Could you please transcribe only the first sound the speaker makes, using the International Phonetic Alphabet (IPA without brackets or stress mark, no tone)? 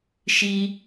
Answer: ʃ